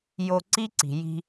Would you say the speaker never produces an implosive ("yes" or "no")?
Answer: yes